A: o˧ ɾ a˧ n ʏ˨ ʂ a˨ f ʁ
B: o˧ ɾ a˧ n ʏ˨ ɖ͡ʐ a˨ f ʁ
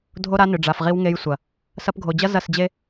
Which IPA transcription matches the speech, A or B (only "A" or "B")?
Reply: B